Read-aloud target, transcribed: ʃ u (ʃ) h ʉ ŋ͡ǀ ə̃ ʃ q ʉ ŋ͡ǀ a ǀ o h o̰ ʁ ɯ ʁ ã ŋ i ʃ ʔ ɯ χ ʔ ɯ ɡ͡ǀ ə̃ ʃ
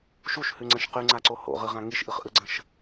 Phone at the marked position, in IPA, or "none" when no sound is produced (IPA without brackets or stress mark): ʃ